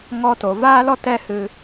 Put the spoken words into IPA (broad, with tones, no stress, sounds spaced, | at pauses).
ŋ ɔ˧ t o˨ v aː˦ l ɔ˦ t ɛ˦ h ɨ˧